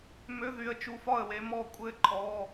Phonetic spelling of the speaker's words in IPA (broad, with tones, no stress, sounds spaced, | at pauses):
m ø˧˥˧ ð y˨˦ ə̯ t͡ʃ u˧˩ f ɒ˥˩ ə̯ w e˨˦ m ɔ˧˩ kʷʼ ɘ˥˩ ǃʰ ɔ˧˥˧